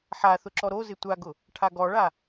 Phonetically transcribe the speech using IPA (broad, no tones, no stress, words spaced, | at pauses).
ħaθʊ ǁɔɾozɪ tʷaɡʊ | ʈʰaɡɔɭa